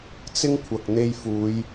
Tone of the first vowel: high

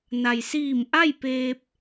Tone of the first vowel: low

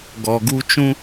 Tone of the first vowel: low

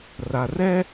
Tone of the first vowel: low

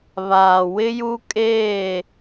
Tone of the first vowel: low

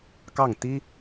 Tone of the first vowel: falling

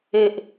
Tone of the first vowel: low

